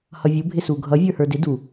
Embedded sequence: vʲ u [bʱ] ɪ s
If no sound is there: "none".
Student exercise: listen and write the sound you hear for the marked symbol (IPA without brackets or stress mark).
bʱ